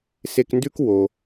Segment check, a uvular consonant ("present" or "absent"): absent